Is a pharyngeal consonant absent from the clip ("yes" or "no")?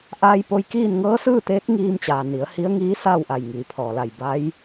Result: yes